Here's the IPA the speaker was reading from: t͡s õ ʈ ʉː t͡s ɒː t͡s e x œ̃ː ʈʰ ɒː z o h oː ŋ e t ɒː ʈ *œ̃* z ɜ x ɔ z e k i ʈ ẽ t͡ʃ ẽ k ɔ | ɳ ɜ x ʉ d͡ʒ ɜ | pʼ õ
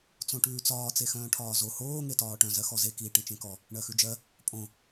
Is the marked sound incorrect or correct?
correct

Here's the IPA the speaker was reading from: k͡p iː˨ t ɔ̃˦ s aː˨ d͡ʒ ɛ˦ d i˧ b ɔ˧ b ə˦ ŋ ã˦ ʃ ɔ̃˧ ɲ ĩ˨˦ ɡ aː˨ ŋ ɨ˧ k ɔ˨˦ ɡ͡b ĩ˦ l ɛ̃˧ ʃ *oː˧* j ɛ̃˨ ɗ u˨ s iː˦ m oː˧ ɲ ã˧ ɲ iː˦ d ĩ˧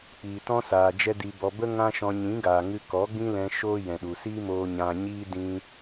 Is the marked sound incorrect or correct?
incorrect: oː˦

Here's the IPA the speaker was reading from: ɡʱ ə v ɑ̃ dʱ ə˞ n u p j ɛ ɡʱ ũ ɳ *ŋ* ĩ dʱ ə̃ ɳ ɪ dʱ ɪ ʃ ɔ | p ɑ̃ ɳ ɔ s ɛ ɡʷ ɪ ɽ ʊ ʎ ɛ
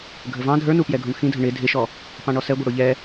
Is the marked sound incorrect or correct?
incorrect: x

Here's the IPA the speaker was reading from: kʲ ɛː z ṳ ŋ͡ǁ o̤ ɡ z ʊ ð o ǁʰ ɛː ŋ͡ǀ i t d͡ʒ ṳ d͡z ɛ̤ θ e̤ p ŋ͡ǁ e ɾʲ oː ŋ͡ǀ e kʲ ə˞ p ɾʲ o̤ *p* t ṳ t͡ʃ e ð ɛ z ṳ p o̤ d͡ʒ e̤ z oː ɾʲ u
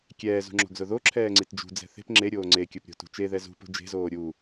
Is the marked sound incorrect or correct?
incorrect: none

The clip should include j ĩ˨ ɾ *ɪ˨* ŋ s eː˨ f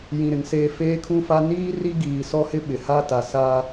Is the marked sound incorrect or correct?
correct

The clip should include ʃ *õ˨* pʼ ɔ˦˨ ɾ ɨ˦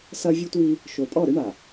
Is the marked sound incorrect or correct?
incorrect: o˨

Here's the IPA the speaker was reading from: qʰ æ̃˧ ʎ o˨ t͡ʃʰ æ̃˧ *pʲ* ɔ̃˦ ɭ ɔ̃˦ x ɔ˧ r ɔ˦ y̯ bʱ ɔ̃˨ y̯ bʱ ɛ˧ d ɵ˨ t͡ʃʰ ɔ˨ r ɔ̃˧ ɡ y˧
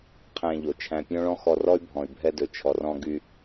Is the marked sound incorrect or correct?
correct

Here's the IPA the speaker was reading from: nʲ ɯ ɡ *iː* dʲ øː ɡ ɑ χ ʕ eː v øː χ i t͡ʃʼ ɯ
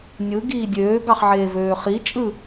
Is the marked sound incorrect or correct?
correct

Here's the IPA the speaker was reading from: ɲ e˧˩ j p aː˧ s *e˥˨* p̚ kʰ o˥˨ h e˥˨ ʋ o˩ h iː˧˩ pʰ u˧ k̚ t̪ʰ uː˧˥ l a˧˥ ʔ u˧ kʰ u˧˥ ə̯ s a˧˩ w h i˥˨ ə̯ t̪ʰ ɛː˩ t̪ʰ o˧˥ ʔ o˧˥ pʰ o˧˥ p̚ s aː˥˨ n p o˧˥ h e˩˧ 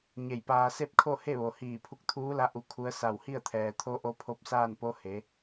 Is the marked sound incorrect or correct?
correct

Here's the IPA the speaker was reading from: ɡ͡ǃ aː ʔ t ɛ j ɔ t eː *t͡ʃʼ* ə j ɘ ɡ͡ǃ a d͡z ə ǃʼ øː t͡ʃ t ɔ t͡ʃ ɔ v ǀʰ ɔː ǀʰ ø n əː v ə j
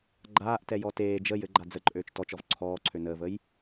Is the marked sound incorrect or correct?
incorrect: d͡ʒ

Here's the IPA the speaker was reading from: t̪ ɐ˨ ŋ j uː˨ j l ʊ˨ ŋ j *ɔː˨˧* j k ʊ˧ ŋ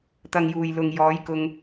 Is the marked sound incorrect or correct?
correct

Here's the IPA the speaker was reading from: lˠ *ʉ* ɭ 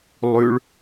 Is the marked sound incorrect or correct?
correct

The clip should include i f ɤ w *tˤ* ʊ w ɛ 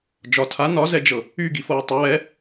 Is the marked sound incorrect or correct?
correct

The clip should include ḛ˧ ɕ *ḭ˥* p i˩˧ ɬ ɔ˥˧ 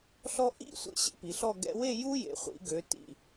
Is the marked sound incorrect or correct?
incorrect: ḛ˥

